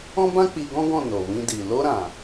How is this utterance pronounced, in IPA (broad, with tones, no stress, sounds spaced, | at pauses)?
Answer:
ɔ̃˦ b ã˦ k͡p i˧ ɡ ɔ̃˦ ɡ ɔ̃˦˨ n o˨ w ĩ˧ d i˨ l o˧ ɾ ã˨